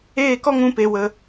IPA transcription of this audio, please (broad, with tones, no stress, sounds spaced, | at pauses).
eː˦˨ k ɔ˦ ŋ ũ˧ p e˧ w ə˧